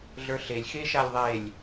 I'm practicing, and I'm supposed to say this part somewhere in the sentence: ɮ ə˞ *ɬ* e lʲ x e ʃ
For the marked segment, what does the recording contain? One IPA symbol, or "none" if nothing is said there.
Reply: ɬ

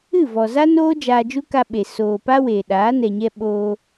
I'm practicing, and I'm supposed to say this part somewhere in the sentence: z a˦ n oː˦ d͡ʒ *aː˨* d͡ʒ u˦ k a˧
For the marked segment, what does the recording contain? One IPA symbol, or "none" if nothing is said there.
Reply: aː˧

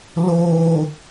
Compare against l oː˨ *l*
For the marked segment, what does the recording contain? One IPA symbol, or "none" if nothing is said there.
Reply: none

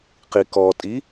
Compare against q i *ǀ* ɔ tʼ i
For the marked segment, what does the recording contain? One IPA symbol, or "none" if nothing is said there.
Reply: k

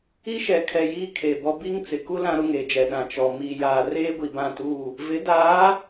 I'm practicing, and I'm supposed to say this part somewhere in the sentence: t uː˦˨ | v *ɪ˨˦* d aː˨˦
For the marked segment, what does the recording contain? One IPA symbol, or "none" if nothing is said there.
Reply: ɪ˨˦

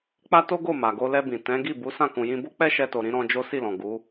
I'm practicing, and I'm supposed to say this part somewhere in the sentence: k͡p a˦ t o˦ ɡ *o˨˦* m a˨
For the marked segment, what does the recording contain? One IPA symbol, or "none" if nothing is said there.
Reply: o˦˨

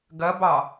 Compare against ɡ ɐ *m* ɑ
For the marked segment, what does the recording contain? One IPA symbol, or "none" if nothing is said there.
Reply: b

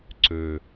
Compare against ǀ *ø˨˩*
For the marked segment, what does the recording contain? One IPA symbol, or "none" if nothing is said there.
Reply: ø˨˩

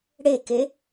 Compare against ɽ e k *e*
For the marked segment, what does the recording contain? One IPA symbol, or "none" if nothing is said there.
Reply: e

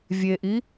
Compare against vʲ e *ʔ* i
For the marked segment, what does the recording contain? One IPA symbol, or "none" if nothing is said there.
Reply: ʔ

